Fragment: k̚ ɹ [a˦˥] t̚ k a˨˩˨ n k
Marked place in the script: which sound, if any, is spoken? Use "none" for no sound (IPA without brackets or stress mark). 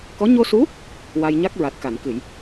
a˨˩